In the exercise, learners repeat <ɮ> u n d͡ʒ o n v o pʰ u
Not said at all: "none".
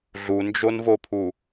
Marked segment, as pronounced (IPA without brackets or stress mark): ɮ